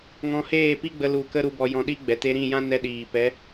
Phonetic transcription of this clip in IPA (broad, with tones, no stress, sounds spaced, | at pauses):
ŋ ɔ̃˧ h eː˦˨ p i˦ ɡ͡b ə˧ l u˨ k ə˧ ɾ u˨ b ɔ˨ j ɔ̃˧ ɗ i˦ ɡ͡b ɛ˨ t e˧ ɾ ĩ˦˨ j ã˦ n ɛ˧ ɗ iː˨ p ɛ˨˦